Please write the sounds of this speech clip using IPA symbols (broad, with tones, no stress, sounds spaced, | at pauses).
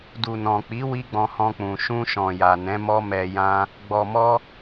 d u˨ n ɔ̃˨ k͡p i˨˦ w i˦ ɡ͡b ɔ̃˧ h ɔ̃˧ k͡p ũ˨ ʃ ũ˧ ʃ ɔ̃˨ j a˨ n ɛ̃˨˦ m ɔ˦ m ɛ˧ j ã˦ | ɡ͡b ɔ˨ m ɔ˧